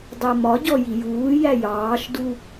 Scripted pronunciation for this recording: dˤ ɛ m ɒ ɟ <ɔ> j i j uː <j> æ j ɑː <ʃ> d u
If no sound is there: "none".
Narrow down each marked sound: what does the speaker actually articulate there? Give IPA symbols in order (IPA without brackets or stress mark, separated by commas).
ɔ, j, ʃ